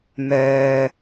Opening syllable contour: low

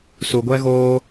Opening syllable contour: low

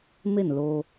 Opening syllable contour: falling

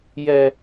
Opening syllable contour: high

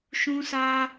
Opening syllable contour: high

